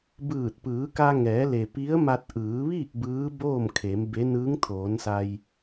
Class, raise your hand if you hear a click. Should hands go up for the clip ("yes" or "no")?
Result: no